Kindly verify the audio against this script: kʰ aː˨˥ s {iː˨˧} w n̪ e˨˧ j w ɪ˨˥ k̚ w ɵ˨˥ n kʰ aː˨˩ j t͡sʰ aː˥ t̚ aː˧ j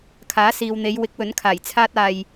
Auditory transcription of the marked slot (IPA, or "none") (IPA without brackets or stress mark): iː˨